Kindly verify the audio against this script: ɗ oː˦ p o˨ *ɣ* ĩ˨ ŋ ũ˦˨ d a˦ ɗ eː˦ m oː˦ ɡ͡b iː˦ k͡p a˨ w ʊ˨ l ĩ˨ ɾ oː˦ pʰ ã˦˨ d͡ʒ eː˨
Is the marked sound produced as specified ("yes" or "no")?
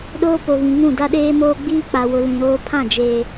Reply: yes